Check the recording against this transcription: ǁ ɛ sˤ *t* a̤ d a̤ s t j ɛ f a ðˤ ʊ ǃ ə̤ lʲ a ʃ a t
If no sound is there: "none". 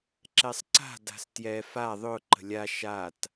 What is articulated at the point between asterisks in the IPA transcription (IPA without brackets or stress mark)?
ǀ